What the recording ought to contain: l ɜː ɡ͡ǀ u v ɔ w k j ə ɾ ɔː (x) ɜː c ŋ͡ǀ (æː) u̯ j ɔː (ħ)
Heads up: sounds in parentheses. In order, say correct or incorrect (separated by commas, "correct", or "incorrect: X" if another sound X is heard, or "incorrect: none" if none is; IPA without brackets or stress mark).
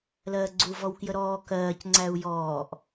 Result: incorrect: k, incorrect: æ, incorrect: ʔ